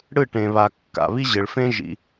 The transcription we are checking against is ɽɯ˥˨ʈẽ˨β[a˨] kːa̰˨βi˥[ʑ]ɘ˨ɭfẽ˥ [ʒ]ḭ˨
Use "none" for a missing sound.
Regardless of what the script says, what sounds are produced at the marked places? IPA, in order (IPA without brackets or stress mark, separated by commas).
a˨, ʑ, ʒ